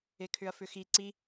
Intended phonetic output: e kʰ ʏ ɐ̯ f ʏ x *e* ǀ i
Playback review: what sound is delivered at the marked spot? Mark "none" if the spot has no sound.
i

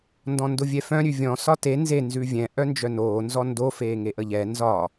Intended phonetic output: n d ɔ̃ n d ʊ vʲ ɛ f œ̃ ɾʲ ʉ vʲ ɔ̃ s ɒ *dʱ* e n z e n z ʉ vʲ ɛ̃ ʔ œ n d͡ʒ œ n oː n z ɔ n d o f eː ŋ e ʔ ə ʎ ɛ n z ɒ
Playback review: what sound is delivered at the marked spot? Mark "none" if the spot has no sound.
t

